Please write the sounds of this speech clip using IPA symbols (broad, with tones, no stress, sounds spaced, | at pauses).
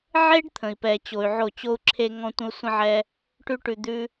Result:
ʕ e˦ ɖ t̪ʰ ə̃˨ i̯ p ɛ˨ t͡ɕ o˨ y̯ ʕ o˦˨ t͡ɕ o˧ u̯ ǁʰ e˧ ŋ ɔ̃˧ tʷ ə̃˦ u̯ sʷ ə̃˦ ʕ ɛ˦ | ʈ ʉ˦ ʈ ʉ˧ d̪ ʉ˦